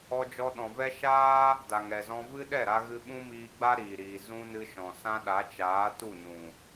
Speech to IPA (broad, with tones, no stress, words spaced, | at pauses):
ɔ˧d͡ʒɔ˧ɗɔ̃˨ vɛ˦ ʃaː˦ | da˨ŋɛ˨zɔ̃˧ vɨ˦ɗɛ˦˨ɾa˧ ɣɨ˧ɓũ˦miː˧ɡ͡ba˦ ɾiː˨ɾiː˨ zũ˦nɨ˧ʃɔ̃˨sã˦ ɗa˨˦t͡ʃaː˨˦tu˦˨nũ˨